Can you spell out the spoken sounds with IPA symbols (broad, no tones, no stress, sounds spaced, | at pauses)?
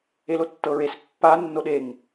e l o tː ɤ ɹ e s pː a nː o ɗ e ŋ